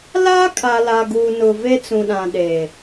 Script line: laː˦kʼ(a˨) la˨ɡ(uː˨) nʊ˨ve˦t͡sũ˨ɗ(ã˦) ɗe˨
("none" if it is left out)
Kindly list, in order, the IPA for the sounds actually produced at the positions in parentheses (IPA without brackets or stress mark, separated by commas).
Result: a˨, uː˨, ã˨